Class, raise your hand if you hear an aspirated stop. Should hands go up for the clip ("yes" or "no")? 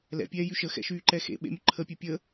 yes